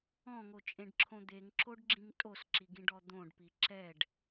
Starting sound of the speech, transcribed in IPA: ɔ̃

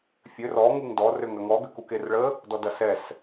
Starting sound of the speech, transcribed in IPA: fʲ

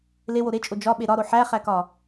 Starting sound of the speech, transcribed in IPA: l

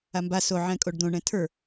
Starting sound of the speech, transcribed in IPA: a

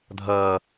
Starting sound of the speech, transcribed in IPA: dʱ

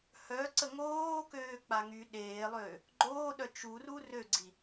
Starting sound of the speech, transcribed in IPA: h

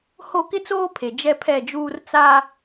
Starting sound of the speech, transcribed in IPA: h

